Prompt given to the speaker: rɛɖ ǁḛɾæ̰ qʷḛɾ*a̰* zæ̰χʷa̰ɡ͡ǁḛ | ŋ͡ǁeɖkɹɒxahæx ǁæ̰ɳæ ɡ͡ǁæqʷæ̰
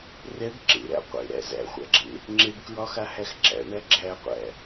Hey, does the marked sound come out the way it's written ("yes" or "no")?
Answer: no